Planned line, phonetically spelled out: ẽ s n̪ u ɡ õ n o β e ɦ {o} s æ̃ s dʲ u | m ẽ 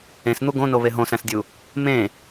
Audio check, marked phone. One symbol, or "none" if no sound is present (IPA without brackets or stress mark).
õ